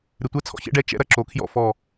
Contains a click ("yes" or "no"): yes